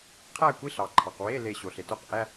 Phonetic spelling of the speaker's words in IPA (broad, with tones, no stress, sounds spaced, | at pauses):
qʰ æ˥˧ kʷ i˧˥˧ ɬ ɑ˩ ǃʰ ɑ˩ q w e˧˥˧ l e˧˩ ɕ o˩ ɬ e˩ t o˥˧ q ʔ æ˧˥˧